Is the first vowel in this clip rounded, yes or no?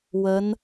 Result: no